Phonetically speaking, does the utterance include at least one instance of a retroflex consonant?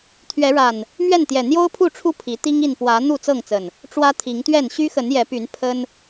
yes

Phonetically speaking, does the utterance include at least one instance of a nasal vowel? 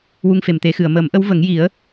no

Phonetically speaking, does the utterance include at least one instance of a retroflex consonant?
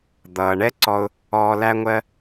yes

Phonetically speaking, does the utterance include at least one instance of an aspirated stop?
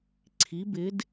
yes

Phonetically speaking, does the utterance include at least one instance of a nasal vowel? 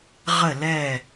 no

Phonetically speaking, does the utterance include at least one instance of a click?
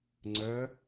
yes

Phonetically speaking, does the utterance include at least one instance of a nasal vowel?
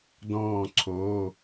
yes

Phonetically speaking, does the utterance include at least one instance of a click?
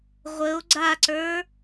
yes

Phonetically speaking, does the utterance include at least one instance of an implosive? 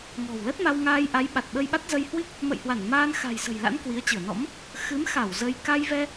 yes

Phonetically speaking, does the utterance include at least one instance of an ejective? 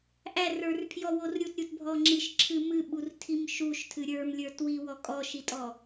yes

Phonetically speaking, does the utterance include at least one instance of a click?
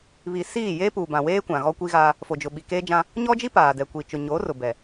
no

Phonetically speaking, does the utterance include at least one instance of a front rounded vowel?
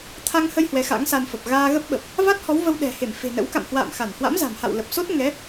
no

